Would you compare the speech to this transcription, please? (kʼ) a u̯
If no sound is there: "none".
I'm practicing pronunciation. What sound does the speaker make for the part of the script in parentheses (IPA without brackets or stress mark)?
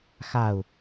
x